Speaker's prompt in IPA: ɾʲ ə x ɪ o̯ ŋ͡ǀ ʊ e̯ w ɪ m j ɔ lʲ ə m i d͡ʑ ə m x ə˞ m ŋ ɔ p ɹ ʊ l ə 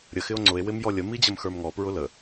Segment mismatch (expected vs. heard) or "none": none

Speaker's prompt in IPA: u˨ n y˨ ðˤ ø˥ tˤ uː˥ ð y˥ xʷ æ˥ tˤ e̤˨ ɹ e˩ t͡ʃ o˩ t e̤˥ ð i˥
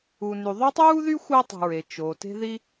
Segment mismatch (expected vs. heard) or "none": none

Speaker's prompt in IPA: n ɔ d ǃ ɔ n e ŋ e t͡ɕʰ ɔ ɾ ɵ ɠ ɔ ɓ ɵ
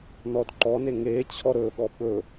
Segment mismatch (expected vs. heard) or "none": none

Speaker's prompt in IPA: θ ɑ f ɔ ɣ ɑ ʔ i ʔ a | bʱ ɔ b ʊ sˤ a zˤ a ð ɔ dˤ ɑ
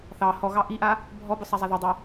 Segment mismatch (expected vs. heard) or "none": f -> h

